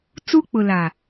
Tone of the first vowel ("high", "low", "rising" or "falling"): high